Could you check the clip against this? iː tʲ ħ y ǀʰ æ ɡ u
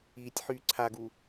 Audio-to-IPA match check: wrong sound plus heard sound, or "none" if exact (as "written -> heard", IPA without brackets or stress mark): æ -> a